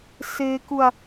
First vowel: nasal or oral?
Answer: oral